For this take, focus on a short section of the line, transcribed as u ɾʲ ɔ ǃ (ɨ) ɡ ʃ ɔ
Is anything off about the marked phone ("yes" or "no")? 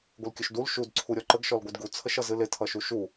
yes